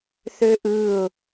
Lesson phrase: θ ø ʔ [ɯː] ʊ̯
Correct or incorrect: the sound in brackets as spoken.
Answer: correct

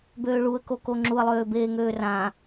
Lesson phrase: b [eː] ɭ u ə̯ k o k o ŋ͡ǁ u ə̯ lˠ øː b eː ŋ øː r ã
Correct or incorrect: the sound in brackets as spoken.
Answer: incorrect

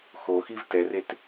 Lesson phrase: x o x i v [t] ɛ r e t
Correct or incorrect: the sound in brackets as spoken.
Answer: correct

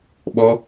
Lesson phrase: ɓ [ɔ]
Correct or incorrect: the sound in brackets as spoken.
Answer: correct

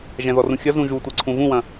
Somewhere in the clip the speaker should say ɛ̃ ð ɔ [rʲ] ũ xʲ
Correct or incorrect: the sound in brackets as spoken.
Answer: incorrect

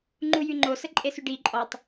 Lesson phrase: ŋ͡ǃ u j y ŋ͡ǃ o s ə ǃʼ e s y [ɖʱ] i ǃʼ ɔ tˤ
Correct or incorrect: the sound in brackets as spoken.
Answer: incorrect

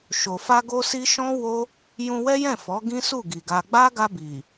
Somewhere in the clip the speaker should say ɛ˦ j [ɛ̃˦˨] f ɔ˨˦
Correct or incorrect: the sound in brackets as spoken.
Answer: correct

